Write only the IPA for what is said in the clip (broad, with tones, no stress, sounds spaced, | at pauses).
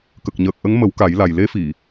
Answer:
k ə˨˩ k̚ ɲ əː˨˩ k̚ ʔ ə˧˥ ŋ m ə˨˩˦ w k a˨˩˦ j l a˨˩ j l e˧˥ f i˨˩˨